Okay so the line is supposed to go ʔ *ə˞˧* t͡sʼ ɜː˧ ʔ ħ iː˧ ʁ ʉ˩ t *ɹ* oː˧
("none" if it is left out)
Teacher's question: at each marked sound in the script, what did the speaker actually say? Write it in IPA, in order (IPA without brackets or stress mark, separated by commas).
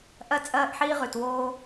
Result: ɜ˧, w